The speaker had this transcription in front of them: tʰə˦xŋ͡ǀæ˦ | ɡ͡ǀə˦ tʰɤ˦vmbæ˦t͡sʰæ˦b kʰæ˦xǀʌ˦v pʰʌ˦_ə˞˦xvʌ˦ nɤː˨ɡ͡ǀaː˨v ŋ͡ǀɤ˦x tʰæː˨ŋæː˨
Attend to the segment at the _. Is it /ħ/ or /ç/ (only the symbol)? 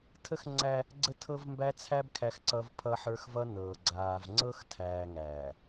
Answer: ħ